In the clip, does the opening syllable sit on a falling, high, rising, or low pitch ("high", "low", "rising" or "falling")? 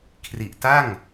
low